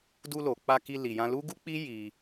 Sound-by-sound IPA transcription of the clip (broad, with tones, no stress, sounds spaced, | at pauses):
d u˧ l o˨ k͡p a˧ k i˧ l i˨ j ã˧ l u˦ ɡ u˦ k͡p i˦ j i˧